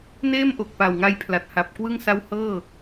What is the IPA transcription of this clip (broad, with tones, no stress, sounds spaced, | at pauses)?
n eː˥˩ m ʔ o˨˩ k̚ p a˨˩ w ŋ a˧ j pʰ l a˨˩ t̚ h a˨˩ p̚ k w ɯ˥˩ ŋ s a˦˥ w h ɤː˥˩